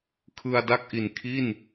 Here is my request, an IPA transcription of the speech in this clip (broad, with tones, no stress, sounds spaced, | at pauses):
kʰ ɯ˧ a̯ d a˥˩ k̚ ʔ i˨˩ n kʰ i˥˩ n